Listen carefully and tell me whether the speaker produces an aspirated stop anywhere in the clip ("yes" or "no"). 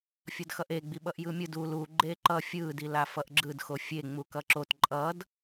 no